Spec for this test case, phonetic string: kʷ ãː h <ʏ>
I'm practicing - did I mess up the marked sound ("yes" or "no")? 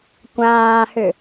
no